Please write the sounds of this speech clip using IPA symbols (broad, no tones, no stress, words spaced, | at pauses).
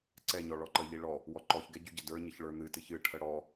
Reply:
ǀɛɲɔ ɭɔǃəʎi ɭɔ | wɔǃɔçɡɛ ɟʉɟɘdə˞ɲɘç ɭə˞n̪ɨtɨç ɨʈʰə ɽɔ